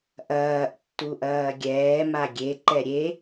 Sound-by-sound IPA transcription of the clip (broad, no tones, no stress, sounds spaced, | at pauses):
ʔ ɐː ʔ tː u ʔ ɐː ɡʲ ɛː m a ɡʲ e ǃ ɛ ɾʲ e